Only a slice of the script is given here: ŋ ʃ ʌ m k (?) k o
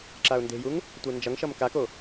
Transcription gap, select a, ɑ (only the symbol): a